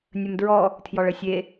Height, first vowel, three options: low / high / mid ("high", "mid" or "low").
mid